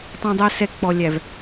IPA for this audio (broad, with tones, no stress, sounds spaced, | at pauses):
tˤ ã˨ dˤ ɜ˨ s ɛ˨ k͡p ɔ˨ lʲ æ˨ v